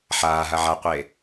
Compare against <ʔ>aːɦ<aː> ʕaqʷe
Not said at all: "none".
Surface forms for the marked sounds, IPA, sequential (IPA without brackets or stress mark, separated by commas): ħ, a